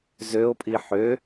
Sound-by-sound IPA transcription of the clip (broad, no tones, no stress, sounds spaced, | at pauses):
z ø o̯ pʼ i ħ ø